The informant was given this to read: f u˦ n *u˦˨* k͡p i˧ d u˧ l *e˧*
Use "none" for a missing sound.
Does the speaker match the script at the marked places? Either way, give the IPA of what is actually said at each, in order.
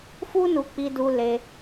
u˧, e˧

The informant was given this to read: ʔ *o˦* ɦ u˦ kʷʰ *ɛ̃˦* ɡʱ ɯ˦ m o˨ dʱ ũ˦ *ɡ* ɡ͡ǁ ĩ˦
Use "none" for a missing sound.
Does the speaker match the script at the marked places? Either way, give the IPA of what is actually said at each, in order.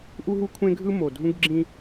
u˦, ẽ˦, ɡ

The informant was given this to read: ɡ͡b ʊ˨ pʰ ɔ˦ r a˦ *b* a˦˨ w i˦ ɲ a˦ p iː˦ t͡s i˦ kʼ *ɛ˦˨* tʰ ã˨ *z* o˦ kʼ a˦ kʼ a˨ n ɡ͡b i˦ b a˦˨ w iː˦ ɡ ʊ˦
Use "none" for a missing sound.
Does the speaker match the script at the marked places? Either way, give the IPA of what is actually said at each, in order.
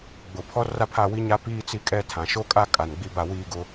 pʰ, ɛ˦, ʃ

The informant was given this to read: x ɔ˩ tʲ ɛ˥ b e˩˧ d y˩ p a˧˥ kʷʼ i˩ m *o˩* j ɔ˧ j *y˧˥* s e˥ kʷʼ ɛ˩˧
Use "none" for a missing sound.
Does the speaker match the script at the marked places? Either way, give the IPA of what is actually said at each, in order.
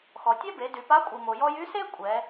o˩, y˧˥

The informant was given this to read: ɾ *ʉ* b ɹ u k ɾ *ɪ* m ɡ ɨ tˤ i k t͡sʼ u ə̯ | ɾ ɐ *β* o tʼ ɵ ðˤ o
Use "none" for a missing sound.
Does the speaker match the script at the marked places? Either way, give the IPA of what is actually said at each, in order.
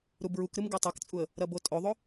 u, ɨ, b

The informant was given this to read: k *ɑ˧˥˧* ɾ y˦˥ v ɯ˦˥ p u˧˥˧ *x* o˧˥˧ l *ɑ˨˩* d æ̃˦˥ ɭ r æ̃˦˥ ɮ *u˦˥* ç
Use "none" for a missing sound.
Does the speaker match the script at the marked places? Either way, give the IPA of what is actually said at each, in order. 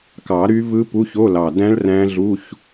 ɑ˨˩˦, ç, ɑ˨˩, u˧˥˧

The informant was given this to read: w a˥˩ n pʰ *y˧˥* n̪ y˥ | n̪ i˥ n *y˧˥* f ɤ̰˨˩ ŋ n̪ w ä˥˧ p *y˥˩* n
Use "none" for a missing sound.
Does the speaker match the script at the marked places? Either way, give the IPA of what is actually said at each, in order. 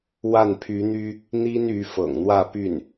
y˧˥, y˧˥, y˥˩

